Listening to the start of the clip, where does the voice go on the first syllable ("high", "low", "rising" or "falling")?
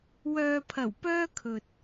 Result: low